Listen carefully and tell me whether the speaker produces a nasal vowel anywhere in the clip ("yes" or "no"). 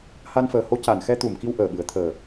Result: no